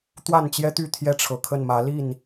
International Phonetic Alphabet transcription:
t̪wa˥˨nt͡ɕjɛ˦t̪y˥˨ t̪ʰjɛ˦ʈ͡ʂʰɤ˨˩kʰə˥˨n mä˨˦li˥˨n

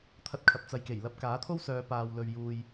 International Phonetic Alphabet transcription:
t̪ʰɐ˧t̚kʰɐ˨p̚t͡sɐ˨jke˨˩j lɐ˧p̚kaː˨˥t̪ʰo˥wsœː˨˧ paː˨wlɵ˨ɥjuː˨j

